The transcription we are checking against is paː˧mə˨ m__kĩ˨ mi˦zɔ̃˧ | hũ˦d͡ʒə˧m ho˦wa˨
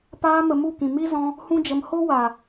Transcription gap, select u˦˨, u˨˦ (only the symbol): u˦˨